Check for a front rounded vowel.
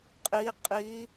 absent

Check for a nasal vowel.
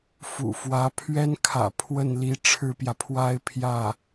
absent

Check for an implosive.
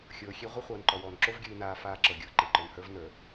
absent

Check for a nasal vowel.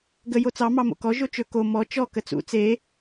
absent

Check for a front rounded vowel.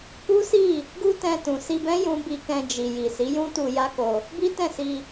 absent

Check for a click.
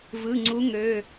present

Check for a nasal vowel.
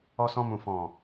present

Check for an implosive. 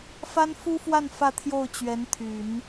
absent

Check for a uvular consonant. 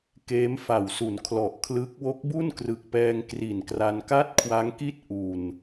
absent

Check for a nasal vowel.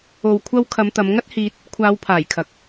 absent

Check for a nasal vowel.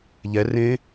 present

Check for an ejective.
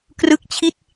absent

